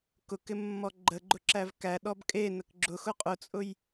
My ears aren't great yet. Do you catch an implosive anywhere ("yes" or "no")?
yes